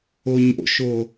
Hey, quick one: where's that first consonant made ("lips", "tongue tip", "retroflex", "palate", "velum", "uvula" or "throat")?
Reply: palate